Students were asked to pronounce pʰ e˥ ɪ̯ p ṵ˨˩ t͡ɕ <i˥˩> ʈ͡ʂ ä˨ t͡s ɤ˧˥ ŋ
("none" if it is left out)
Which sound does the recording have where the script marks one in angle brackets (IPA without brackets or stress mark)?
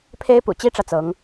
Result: i˥